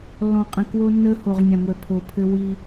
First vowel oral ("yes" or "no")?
no